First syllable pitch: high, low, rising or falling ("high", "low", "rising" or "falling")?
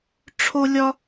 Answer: high